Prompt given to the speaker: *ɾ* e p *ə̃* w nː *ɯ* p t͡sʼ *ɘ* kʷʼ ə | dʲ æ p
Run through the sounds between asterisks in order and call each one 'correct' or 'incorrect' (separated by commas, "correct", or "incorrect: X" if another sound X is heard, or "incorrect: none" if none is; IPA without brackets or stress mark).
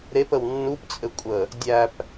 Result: correct, incorrect: ə, incorrect: u, correct